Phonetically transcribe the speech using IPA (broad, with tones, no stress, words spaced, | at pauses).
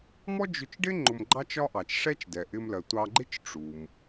mɔ˥d͡ʒʊ˧t͡ʃɖɪ˥ ŋ͡ǃʊ˧mɡ͡ǃɑ˥t͡ʃɒ˥ ʔɑ˩t͡ʃʂɛ˥t͡ʃ dɛ˩ʔɪ˧mlɜ˩ tʷɑ˧ɡ͡ǃɪ˥t͡ʃ ʈ͡ʂu˩m